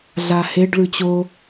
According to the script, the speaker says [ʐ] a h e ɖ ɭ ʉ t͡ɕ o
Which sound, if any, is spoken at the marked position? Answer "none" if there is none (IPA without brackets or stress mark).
ɮ